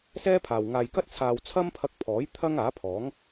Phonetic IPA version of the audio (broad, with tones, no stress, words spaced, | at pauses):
sɛː˥pʰaː˨w ŋaː˨jkɐ˥t̚ t͡sʰaː˧w t͡sʰɐ˥mpʰɐ˧k̚pʰɔː˨˥j t̪ʰɐ˥ŋaː˨˥pʰɔː˨˥ŋ